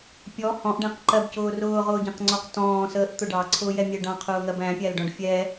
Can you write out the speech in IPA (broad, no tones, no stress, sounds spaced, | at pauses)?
pʲ ɔ h ɔ̃ ʔ ɖ æ̃ q ǃ ɜ b c ʊː r ʊː ʁ ʊː ɟ ɛ̃ q ŋ͡ǀ ɔ q t ɔ̃ː s əː ʔ t̪ ʊ ɖ ɑ ǀʰ ʊː j ɛ mʲ ɛ ɖ ɑ̃ qʰ ʊː ŋ ɜ b æ̃ pʲ æ l ɖ ɔ̃ ɖ fʲ ɛ